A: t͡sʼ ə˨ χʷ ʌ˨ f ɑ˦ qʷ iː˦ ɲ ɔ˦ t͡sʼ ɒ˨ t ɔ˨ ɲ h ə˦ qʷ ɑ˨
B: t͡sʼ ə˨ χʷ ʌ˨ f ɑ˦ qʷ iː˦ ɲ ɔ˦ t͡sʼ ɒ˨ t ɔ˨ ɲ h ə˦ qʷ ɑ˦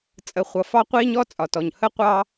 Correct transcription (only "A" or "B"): B